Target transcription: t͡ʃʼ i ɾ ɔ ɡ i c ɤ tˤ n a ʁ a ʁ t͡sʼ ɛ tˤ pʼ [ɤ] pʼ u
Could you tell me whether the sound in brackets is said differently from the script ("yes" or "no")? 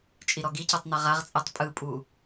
yes